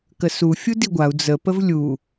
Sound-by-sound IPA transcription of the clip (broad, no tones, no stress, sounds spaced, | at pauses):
k ə s u fʲ u d i ɡʷ a u̯ d͡z ə p ə v lʲ u